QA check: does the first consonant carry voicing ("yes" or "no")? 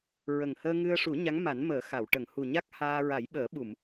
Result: yes